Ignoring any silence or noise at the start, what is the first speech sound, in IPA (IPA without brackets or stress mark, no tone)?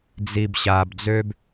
d͡z